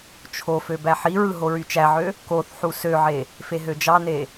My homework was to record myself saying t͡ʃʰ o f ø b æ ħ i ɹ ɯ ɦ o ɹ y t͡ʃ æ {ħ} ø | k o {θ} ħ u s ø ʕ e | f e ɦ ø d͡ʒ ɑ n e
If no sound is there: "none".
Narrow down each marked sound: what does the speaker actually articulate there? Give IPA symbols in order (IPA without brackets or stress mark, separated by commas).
ʕ, θ